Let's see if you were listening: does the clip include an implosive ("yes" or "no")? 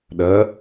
yes